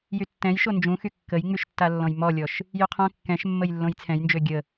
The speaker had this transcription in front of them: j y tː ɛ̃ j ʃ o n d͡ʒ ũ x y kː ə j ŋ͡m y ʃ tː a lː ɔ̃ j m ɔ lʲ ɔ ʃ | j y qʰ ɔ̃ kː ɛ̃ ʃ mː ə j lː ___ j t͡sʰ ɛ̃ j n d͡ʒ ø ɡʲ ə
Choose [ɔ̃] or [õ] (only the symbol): õ